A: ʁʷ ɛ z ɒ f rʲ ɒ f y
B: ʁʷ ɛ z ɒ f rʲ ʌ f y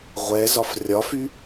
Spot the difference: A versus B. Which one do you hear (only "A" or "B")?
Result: A